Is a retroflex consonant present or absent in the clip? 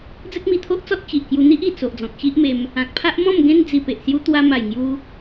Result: absent